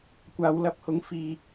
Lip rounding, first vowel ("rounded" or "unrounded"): unrounded